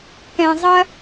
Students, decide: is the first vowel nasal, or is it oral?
nasal